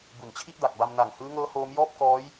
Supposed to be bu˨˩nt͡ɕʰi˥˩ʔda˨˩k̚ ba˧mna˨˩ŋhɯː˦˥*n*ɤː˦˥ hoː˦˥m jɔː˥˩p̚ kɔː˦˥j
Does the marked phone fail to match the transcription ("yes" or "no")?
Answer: yes